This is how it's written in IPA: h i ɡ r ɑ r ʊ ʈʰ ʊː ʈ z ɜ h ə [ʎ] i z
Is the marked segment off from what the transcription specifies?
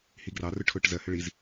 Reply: yes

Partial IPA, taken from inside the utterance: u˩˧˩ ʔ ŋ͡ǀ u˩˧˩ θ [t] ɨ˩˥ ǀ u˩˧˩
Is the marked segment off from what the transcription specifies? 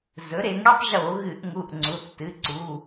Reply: no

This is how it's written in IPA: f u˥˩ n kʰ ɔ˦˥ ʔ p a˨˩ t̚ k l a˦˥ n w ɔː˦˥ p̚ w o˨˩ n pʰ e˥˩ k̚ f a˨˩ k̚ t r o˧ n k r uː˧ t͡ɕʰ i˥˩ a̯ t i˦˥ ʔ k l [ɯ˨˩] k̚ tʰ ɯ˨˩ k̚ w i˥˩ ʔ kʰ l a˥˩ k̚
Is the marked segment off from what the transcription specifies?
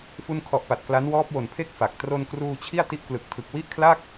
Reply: no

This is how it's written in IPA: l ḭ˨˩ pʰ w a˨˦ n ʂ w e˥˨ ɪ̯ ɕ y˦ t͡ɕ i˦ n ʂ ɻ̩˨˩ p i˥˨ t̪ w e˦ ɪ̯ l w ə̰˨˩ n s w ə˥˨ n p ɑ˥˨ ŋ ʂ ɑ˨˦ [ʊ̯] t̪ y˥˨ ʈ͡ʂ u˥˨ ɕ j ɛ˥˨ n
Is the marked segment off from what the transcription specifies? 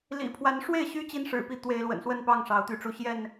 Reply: no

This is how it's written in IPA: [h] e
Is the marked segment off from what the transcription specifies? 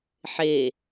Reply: yes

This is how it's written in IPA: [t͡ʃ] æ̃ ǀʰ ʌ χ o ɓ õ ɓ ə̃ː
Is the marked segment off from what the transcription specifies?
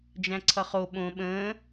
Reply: yes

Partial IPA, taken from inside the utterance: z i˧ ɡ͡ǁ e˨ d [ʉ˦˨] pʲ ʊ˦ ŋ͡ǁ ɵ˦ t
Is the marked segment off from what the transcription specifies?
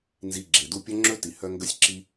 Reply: yes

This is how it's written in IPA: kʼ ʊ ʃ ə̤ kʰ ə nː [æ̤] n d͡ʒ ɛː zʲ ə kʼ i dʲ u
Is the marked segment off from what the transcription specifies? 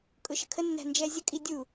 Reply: no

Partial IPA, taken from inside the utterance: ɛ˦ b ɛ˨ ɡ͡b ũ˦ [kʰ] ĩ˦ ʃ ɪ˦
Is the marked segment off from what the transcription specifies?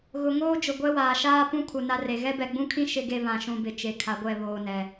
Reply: no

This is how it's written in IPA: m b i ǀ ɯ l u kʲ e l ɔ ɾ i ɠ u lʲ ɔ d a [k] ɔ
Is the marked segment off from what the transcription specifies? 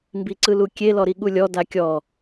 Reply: yes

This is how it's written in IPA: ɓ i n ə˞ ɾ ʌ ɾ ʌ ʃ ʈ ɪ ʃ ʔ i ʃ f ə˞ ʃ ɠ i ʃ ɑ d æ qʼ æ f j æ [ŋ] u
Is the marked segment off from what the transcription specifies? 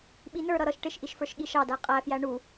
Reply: yes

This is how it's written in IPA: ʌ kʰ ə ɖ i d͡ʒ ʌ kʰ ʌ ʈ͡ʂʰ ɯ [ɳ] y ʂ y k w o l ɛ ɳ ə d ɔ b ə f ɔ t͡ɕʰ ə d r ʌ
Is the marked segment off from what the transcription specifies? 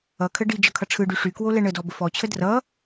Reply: yes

